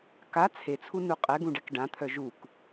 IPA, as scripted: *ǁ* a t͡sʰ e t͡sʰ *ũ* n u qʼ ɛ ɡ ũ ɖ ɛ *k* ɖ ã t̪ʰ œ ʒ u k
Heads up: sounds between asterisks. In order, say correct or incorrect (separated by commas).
incorrect, incorrect, correct